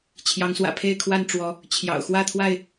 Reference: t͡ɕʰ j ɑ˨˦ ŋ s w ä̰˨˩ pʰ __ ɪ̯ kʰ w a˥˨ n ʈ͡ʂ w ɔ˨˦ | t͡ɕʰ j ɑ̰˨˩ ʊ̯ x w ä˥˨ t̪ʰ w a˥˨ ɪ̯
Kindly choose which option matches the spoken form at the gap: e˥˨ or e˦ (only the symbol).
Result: e˥˨